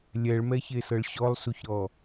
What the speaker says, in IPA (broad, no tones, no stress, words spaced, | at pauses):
lʲɛɭmɛçesɤɭ ɕɔlˠsuçɾɔ